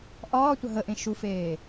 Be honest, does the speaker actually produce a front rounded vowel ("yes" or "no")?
no